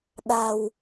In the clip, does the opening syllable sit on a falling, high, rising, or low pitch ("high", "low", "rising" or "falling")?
low